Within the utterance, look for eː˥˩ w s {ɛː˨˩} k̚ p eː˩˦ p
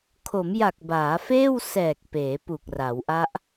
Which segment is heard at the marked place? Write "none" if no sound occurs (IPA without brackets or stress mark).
ɛː˨˩